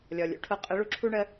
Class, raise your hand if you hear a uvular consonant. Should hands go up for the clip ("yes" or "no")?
yes